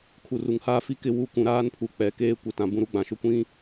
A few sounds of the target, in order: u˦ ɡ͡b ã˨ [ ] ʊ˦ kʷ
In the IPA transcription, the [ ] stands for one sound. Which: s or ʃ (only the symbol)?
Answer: ʃ